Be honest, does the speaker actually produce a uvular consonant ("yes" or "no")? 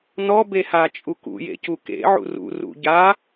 no